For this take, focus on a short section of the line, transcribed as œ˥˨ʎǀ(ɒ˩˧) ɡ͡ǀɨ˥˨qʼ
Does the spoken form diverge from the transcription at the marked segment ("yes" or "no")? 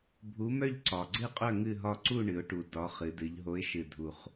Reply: yes